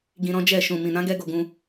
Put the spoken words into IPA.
ɡĩ˧ɾɔ̃˦d͡ʒɛ˦˨ ʃũ˨mĩ˨ nã˨˦ɡɛ˧ ɡo˧ɡũ˧

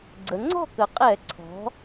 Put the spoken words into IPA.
ɡ͡ǀə˩˧ŋ͡ǀɔ̤˥˨kə˩˧ qʼɛ˧˩˧ǀʰɔ̤˩˧

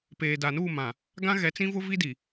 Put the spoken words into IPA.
peː˨da˨nuː˦˨mã˨ | ɡã˦ɣɛ˨˦ t͡sĩ˦vʊ˦vi˦ di˨

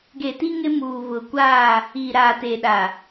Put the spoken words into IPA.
ɡe˨ti˦ ŋɪ˦muː˨βʊ˨ kʷaː˦˨ | iː˨ɾaː˨teː˨ɗa˨

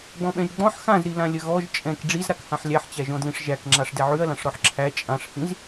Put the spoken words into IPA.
ɡ͡bɔ̃ɓɛ̃ʒɡ͡bɔ̃ħ xãzɾilã lʲəɣɔʒ t͡ʃʼɛ̃k ɖ͡ʐizɾak hãħlʲæħt͡ɕæʒɔ̃ dlĩʂʒækŋ͡ǁaʂ dɛʕʉɐ̯lãʂ ɾɔħǁʰæ t͡ʃʼãʂhĩz

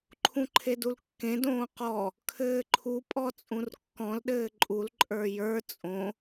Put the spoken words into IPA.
ǃʰũǃʰedulkːẽ dõːqɔ | kʰɘːǃʰu pʼɔt͡sʼũrkːɔ̃l ɗɘːǃʼul ǃʼə˞jə˞ t͡sʼõ

